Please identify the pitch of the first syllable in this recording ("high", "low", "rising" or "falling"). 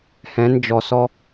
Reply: rising